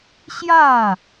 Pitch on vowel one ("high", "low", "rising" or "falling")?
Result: falling